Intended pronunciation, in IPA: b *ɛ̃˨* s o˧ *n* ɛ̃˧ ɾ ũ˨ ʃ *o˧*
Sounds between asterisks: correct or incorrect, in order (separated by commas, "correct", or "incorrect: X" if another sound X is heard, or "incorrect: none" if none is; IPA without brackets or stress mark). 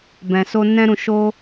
correct, correct, correct